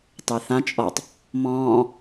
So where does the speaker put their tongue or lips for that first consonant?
tongue tip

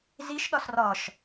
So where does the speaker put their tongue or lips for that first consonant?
tongue tip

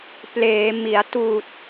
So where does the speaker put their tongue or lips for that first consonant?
lips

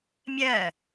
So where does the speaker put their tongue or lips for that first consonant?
lips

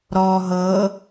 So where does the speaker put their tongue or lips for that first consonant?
tongue tip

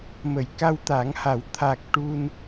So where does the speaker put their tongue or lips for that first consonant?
lips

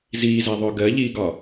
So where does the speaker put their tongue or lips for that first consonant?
tongue tip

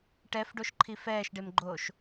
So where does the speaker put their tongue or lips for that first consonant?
retroflex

